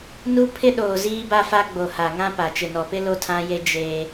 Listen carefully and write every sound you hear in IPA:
nu˦ pʰɪ˦ɗoː˨ ziː˦ba˦fa˦ ɡ͡bo˨ha˨ŋã˦pa˨ t͡ʃɪ˨nɔ˨pɪ˦ lo˦tʰã˦je˦ d͡ʒeː˦

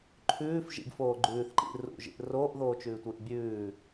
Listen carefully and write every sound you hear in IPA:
ǃʰʉːfʒḭɡfoː ɡ͡ǃʉːθǃḭ rṵʒḭʔ roːʔðoːt͡ʃʉːtʷɨːʔ bʲʉː

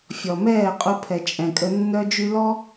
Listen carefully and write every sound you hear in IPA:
fʲɔ˨mɛː˦˨qʼu˧ pʰɛ˨t͡ʃʼɛ̃˨kʼə˧ nːœ˦ d͡ʒy˧lɔ˦

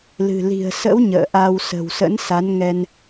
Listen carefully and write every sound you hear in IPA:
lɨ̤˨˩li̤˨˩ə̯sə̰˧˥w ɲə̰ː˧˨ʔa˧w sə̤˨˩wsə̰˧˥n sa˨˦nŋɛ˧n

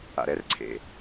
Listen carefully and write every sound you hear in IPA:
a̰˩ɾɛ˨˦rǀʰḛ˩

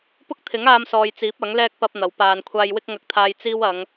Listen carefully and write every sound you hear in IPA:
pʊ˥k̚t̪ʰɪ˨˥ŋaː˧msɔː˨j t͡siː˨˥p̚ɐ˨˥ŋlɛː˥k̚ pɐ˥p̚n̪ɐ˨˥wpaː˧n kʷʰaː˧jwɪ˥k̚ŋɐ˧k̚t̪ʰaː˧j t͡siː˥wɐ˨˧ŋ

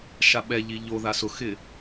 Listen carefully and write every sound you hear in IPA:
ʃaɓɛʎi ʎo ðasʊxɪ

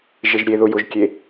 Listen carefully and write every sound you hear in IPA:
ʒeʒɾʲeðʊ jʊʒkʲe

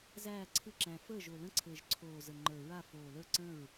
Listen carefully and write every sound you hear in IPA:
zæː˥˩ ǀʰɯ˥˩ǁæ̃˨˩ fəː˥˩ ʒo˨˩lə̃˥˩ǀʰɘː˨˩ʒ ǀʰoː˨˩zə˨˩ŋ͡ǃə˞˨˩ ɹa˥˩ foː˨˩lə˞˥˩ǀə̃˥˩ɹ

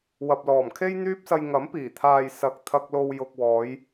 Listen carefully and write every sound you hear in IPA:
wɐ˨p̚lɔː˨˩mkʰe˥j n̪yː˥p̚sɐ˧j ŋɐ˨˥mpiː˨˩t̪ʰaː˨j sɐ˨˥k̚ t̪ʰɐ˧k̚lo˧w jʊ˨k̚wɔː˨˧j

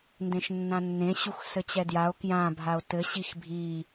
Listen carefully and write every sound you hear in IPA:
ndẽʃnːãnːẽ ɕuxsɘt͡ɕɛdjao̯ kjã bʱao̯tɘ ɕixbʱi

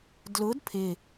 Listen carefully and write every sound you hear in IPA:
dlʊd pʰɪ

